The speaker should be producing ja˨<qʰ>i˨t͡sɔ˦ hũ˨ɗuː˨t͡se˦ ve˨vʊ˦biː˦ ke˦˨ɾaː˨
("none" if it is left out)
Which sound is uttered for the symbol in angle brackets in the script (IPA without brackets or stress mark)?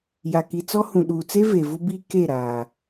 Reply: k